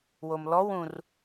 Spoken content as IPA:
w o m l ɔ w ũ r

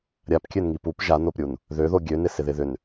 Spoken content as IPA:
ɾʲ a p kʲ ø n ŋ i p u p ʒ a n o p ɾʲ u n | ð ø ð o ɡʲ ø n ɪ s ɪ ð ɪ ð ʏ n

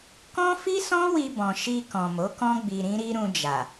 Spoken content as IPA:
k ɔ̃˦ f i˦ s ɔ̃˦ w i˧ b ɔ̃˨ ʃ i˧ k ɔ̃˨ m o˨˦ k ɔ̃˦ ɡ͡b i˧ ɾ ĩ˦ ɾ i˦ ɾ ũ˧ d͡ʒ a˨

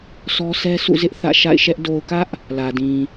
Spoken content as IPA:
sʰ ɔ˦ sʰ ɛ˦ sʰ ṵ˦˨ z ɪ˦ ʔ θ ä̰˦˨ ʃ a̰˦˨ ɪ̯ ʃ ɛ˦ ʔ d o˨ ʊ̯ k ä˦ ʔ | l ä˨ d ĩ˨

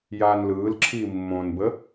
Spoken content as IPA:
j aː n l ɯː l ǁʰ iː mː õ n b ə

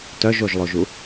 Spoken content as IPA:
t œ ʒ o ʒ lˠ o ʒ u

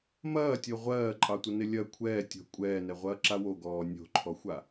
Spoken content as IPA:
m ɐː tʲ o ʁʷ ɜː ǃʼ ɑ tʷ ɐ n ɪ lʲ ɐ kʷʰ ɛː tʲ o̤ kʷʼ ɛː n ɛ ʁʷ ɐː ǁ a w o ɡ ɔː nʲ o̤ ǃʰ ɔ xʷ a

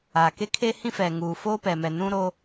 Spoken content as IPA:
aː˨ k e˦ kʰ eː˦ h ĩ˦ f ɛ˨ ŋ uː˨ f oː˦ p ɛ˨ m ɛ˨ n ũ˦ ɾ o˦

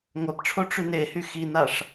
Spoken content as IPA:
ŋʷ ɜ p ʈ͡ʂʰ o ʈ͡ʂ y n e h y x i n a ʂ

